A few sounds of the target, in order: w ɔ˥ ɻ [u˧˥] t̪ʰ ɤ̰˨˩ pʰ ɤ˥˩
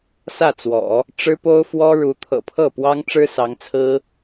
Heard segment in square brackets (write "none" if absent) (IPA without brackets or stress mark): u˧˥